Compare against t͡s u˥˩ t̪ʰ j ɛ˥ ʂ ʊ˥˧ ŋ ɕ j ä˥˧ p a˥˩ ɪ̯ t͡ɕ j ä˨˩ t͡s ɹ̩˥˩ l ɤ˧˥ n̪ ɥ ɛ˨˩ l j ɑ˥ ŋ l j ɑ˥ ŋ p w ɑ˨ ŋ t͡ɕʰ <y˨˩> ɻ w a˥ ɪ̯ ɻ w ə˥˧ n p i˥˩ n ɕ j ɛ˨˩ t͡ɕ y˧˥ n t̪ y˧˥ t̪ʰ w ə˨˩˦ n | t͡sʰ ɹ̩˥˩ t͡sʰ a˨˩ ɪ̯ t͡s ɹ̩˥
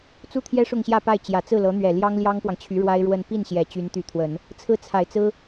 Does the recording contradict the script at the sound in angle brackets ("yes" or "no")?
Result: yes